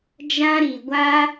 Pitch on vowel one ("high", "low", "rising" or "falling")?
high